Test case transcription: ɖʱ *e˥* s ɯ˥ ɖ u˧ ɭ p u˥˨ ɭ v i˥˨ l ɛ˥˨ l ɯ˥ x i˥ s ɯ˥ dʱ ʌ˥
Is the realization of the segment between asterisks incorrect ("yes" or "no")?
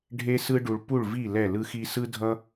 no